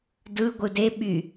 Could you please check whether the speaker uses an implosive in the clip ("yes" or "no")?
yes